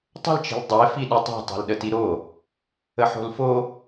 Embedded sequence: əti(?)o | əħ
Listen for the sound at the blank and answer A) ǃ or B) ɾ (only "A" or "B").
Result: B